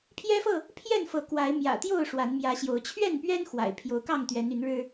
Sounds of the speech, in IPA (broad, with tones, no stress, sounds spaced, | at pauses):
pʰ j ɛ˦ f ɤ˥˨ | pʰ j ɛ˥˨ n f ɤ˨˦ k w a˨˦ ɪ̯ m j ä̰˨˩ t̪ j o˥˨ ʊ̯ ʂ w a˨˦ n m j ä˨˦ ɕ j o˨˦ ʊ̯ t͡ɕʰ ɥ ɛ˥˨ n p ɥ ɛ˦ n x w a̰˨˩ ɪ̯ pʰ j o˨˦ ʊ̯ k ɑ˥˨ ŋ t̪ ɥ ɛ˨˦ n y˨˦ n ɻ ɻ̩˦